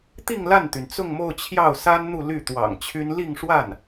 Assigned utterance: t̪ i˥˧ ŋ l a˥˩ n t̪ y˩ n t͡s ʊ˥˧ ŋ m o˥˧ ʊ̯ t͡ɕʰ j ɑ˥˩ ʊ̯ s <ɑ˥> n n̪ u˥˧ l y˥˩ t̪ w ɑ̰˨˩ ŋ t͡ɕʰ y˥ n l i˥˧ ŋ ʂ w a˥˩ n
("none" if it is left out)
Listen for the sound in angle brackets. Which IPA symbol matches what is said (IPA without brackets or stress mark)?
a˥